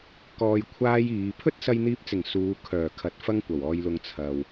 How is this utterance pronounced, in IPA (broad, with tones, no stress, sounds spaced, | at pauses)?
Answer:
k ɔː˧ j kʷʰ aː˥ j iː˨˧ pʰ ɵ˥ t̚ s ɐ˧ j n̪ iː˧ p̚ t͡s ɪ˨˩ ŋ s uː˨˧ kʰ œː˨˩ kʰ ɐ˨˥ t̚ f ɐ˥ ŋ kʷ ɐ˨˩ w ɔː˧ j l ʊ˧ ŋ t͡sʰ ɐ˨ w